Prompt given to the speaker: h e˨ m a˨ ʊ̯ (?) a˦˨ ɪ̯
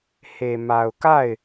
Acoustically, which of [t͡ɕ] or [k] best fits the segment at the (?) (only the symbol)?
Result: k